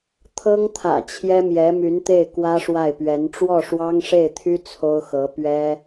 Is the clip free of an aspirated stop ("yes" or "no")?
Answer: no